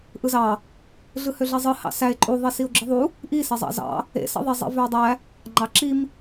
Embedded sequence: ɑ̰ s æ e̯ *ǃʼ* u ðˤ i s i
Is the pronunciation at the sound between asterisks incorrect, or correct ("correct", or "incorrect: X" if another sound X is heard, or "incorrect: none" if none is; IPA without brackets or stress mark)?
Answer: correct